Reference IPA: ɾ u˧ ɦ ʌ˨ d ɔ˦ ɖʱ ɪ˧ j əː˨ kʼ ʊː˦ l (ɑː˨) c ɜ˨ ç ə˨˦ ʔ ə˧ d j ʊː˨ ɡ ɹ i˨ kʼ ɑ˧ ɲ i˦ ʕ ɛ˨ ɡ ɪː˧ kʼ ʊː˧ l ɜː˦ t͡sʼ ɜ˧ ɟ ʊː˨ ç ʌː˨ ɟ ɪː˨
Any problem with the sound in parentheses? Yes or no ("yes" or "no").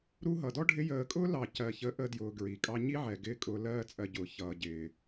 yes